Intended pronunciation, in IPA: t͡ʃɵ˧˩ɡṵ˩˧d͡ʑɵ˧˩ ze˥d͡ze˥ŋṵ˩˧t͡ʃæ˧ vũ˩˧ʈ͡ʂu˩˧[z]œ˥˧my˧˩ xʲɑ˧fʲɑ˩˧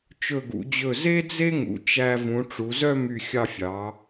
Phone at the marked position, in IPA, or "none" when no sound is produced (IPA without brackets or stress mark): z